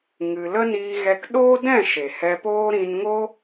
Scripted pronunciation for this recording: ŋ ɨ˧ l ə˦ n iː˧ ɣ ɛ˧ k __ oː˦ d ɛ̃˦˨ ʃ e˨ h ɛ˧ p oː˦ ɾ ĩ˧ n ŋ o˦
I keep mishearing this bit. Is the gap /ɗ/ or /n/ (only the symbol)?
ɗ